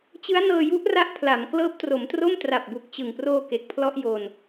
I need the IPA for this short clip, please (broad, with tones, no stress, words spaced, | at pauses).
t͡ɕɯ˦˥a̯nɤː˧ju˦˥ʔra˦˥ʔ pʰla˩˦mklɤː˦˥p̚tro˩˦mtro˥˩m tra˨˩p̚bu˨˩k̚t͡ɕɯ˨˩ŋproː˧ ke˨˩k̚pʰlɔ˥˩ʔjoː˧n